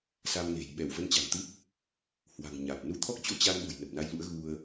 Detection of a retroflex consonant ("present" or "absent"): absent